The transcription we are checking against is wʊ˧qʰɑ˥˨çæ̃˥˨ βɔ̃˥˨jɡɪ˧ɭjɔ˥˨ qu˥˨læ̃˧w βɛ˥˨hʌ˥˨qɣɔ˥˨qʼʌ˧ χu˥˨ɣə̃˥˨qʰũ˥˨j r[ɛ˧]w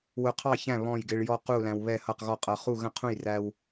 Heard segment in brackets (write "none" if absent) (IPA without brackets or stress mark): æ˧